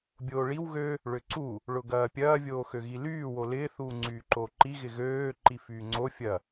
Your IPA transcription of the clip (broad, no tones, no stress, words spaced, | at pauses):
bʲoːɭiw ɣø | ɭøǀu | ɭʊɡɐːpʲɐː vʲoːxøɣilyː wolɪː θuːŋ͡ǀyːǃoːǃi ɣɪɣøː ǃifyːŋ͡ǀo fʲɐ